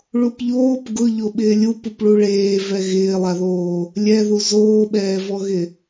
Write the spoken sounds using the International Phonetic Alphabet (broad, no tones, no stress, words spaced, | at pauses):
ɭupʎoːp ɡʊʎo ɓɪːlʲu pupɭuɭeːvɛ ɣɪːlˠaðoː | lʲɛðu zoːɓɛːvɔɣɪ